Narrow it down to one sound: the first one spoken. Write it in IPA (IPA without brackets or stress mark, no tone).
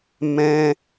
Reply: m